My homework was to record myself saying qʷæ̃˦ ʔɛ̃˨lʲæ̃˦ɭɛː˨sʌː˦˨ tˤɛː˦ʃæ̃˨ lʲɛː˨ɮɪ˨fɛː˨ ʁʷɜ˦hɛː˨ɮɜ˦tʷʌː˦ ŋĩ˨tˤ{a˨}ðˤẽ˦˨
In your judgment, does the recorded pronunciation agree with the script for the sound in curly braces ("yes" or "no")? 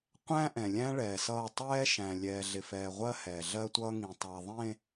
yes